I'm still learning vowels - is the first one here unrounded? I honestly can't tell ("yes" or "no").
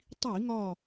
yes